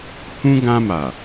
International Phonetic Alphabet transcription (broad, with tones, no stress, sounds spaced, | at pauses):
h ũ˦ ɡ ã˧ m a˨